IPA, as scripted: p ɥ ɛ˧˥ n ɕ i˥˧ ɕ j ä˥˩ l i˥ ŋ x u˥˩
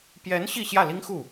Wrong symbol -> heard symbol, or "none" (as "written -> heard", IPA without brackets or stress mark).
ɥ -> j